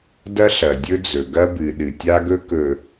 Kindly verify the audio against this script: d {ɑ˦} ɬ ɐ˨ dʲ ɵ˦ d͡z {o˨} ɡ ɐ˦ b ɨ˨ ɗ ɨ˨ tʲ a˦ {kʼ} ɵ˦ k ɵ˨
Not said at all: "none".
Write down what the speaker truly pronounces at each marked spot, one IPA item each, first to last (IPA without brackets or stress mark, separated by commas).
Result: ɐ˦, ɵ˨, ɡ